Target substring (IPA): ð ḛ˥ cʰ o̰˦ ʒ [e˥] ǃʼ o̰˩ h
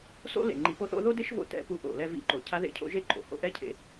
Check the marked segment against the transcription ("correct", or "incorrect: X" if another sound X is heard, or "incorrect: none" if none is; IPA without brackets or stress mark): correct